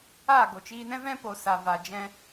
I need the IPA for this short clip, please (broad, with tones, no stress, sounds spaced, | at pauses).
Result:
a˦˨ ɡ o˨ t͡ʃ iː˧ n ɛ̃˦ v ɛ̃˦ p o˨ s a˨ v a˨ d͡ʒ ɛ̃˦